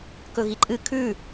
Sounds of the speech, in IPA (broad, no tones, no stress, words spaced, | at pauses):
kɵɣiǃʼɨ kʰʉ